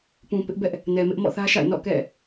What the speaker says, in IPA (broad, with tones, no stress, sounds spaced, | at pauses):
p ũ˨ p ɪ˦ ʔ b ɛ˦ ʔ | n ɛ˨ m ɪ˦ ʔ m ɔ̰˦˨ θ ä˦ ʃ a̰˦˨ ɪ̯ n ɔ̰˦˨ k ɛ̰˦˨